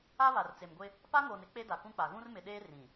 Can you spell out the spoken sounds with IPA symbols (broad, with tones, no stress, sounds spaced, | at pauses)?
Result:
a˦ β a˨ r t͡s e˨ m ɡʷ ɪ˦ | p a˦ ŋ oː˨ n ɪ˦ k͡p e˦ d a˨ k ũ˦ k͡p a˨ ɣ ũ˦ r m ɪ˨ ɗ eː˦ r ĩ˨